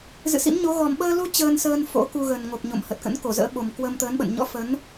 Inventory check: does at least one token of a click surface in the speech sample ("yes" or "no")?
no